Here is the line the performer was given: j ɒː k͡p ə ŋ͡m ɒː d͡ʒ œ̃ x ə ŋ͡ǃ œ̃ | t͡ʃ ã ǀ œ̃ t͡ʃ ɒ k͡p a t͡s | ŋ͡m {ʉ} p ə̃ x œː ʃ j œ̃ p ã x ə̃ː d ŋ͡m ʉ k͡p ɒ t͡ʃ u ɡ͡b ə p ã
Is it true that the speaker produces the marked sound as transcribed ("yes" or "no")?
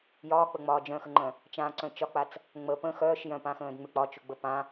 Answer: no